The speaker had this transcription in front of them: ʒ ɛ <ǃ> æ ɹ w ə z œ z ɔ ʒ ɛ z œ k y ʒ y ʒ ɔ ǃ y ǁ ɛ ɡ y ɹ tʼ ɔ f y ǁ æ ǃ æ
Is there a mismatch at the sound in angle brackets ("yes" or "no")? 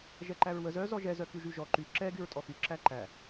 no